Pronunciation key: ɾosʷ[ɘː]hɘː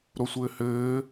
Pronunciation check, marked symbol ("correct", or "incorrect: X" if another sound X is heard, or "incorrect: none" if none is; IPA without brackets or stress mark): correct